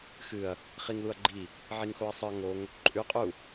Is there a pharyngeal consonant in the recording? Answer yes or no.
yes